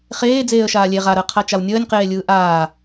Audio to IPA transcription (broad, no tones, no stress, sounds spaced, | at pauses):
χ eː d͡z eː ə̯ ʃ aː lʲ e ʁ a ɾ əː qʰ a t͡ʃ a w nʲ əː nʲ q eː lʲ ɯː ʔ aː